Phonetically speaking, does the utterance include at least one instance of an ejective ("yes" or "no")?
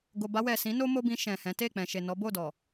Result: no